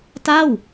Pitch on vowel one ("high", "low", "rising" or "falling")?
falling